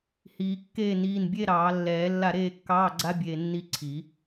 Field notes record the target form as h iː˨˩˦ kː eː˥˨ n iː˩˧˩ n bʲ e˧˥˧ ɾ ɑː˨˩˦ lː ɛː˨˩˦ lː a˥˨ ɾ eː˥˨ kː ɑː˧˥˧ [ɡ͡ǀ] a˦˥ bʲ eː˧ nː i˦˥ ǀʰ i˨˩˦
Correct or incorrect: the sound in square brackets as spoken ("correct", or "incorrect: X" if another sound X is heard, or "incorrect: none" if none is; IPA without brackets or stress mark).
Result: correct